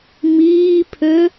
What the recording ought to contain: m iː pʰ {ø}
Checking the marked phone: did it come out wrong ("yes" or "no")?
no